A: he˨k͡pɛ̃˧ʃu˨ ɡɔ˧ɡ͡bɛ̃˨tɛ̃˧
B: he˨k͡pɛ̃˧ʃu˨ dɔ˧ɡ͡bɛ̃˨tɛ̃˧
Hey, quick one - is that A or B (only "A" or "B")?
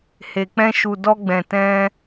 B